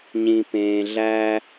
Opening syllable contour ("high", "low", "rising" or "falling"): low